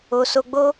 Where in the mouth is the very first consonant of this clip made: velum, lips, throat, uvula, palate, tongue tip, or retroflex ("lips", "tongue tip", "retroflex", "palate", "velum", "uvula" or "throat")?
tongue tip